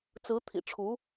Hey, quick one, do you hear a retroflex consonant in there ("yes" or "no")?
yes